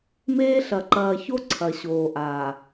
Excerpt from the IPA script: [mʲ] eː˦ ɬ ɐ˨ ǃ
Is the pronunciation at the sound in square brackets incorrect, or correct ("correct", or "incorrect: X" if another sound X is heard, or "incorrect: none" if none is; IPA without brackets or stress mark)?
incorrect: m